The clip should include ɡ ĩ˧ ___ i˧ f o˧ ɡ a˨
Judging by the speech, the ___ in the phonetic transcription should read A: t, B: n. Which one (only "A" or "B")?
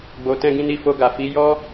B